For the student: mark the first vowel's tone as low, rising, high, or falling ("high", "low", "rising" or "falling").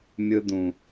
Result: high